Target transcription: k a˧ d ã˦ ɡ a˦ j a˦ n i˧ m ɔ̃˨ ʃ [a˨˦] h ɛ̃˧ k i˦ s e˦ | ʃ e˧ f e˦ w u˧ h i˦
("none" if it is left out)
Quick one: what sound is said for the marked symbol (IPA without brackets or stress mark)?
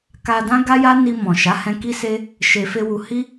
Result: a˨˦